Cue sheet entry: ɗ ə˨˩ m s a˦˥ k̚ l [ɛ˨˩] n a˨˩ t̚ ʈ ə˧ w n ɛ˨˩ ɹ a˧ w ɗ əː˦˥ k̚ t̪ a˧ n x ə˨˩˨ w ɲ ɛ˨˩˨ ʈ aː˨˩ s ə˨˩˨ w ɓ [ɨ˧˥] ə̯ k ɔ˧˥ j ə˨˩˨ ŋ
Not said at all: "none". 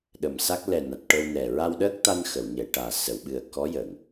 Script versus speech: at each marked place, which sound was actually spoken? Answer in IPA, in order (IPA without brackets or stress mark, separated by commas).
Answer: ɛ˨˩, ɨ˨˩